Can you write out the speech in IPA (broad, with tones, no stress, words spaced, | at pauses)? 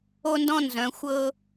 o˥ndɔ̃˥ nzœ̃˧˥ xʷɤ˥